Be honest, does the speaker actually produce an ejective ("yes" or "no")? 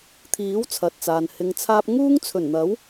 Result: no